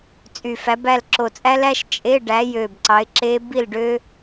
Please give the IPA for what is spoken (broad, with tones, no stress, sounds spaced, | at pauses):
t͡sʼ y˨˩ f æ˨˦ b æ˥˨ l ǁ o˨˩ t͡sʼ æ˦˥ l æ˦˥ ʃ t͡ʃʼ e˧˥˧ ɖ æ˨˦ j ø˨˩ b ǀ ɑ˨˦ ɪ̯ ǁ e˦˥ b i˥˨ l ɖ ø˦˥